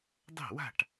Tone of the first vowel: falling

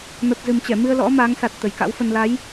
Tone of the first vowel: low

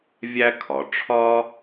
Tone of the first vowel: high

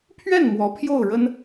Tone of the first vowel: falling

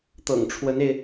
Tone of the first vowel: low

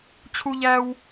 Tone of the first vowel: high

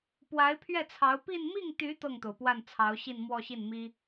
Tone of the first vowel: rising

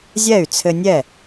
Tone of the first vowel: falling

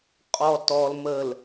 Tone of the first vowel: low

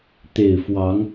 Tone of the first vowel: low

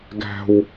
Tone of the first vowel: low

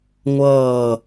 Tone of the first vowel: falling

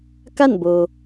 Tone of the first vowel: falling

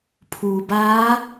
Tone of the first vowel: low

